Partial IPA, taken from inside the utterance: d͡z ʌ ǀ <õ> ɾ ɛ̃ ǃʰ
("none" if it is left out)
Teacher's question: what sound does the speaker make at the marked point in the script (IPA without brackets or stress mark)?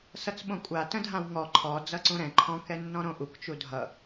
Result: ũ